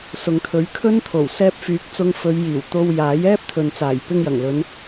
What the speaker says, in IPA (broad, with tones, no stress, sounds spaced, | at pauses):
s ʊ˨ ŋ t̪ʰ ɵ˨˥ ɥ kʰ ɵ˥ n t̪ʰ o˨˩ w s ɛː˥ p̚ f yː˨˥ k̚ t͡s ʊ˧ ŋ f ɵ˨˧ ɥ j iː˨˩ w t̪ o˧ w j aː˨˥ j ɛː˥ p̚ t̪ʰ ɵ˨ n t͡s aː˨˩ j p ɪ˧ ŋ j ɐ˨˩ ŋ l ɵ˨˧ n